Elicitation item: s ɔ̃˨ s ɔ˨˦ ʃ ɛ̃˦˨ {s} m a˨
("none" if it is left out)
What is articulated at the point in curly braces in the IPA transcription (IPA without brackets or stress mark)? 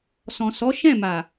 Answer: none